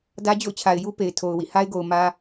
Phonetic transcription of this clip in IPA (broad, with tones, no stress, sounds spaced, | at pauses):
d ä˦ d͡ʑ o̰˦˨ ʊ̯ t͡ɕʰ a˨ ɪ̯ j u˦ p e˨ ɪ̯ tʰ o˨ ʊ̯ w ḭ˦˨ h a˦ ɪ̯ ɡ o˨ ʊ̯ m ä˦